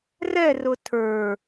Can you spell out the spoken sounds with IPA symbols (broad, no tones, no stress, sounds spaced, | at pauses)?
r ɛ r ʊ tʰ ə˞